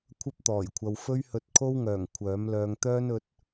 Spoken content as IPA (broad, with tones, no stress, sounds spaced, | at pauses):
kʷʰ ɐ˥ p̚ t̪ ɔː˨˩ j kʷʰ ɐ˨ w f ɵ˥ ɥ h ɵ˧ t̚ kʰ o˥ w ŋ œː˨˩ ŋ kʷʰ œː˨˥ m l œː˧ ŋ t̪ œː˥ n ɵ˨˥ t̚